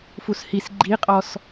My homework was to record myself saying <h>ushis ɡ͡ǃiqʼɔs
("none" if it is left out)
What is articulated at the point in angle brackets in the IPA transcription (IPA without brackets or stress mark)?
f